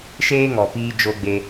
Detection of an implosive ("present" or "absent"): absent